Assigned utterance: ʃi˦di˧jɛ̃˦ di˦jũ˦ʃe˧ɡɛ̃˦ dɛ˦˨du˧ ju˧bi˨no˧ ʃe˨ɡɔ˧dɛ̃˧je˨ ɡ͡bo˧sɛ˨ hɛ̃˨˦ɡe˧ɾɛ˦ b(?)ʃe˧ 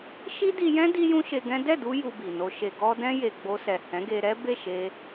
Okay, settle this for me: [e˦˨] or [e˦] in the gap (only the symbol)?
e˦˨